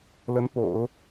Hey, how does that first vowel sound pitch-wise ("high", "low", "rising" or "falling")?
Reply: rising